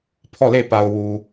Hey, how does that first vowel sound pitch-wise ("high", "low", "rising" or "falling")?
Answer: falling